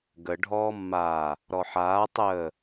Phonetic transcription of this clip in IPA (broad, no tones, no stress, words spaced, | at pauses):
ɡə ɖʱɔːmːaː | ɾɔħaː tˤəː